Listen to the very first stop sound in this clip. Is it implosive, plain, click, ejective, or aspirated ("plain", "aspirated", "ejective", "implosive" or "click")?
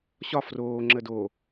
click